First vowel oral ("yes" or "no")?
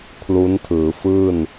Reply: yes